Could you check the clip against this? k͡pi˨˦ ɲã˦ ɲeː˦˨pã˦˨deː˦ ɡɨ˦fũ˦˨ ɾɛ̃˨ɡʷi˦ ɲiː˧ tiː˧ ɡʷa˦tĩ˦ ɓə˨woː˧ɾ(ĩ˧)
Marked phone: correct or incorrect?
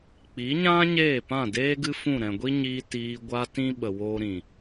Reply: incorrect